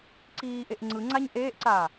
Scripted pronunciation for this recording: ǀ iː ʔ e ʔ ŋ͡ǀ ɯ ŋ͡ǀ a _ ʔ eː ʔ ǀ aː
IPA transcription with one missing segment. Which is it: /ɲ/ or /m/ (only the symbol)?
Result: ɲ